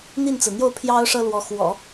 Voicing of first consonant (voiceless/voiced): voiced